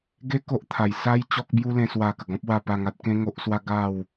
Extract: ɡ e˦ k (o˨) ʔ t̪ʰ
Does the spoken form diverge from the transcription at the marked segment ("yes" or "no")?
yes